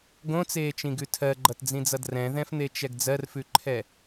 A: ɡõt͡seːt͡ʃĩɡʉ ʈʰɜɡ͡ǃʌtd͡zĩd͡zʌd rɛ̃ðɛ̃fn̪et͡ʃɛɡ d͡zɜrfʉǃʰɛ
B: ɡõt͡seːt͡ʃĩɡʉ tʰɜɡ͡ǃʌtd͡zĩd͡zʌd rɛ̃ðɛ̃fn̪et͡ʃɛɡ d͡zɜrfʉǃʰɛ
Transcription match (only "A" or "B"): B